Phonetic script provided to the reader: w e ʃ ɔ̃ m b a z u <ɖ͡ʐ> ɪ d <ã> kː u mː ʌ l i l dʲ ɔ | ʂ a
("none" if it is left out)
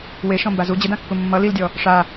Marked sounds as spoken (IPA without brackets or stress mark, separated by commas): d͡ʑ, ã